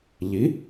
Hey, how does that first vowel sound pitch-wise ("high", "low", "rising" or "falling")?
rising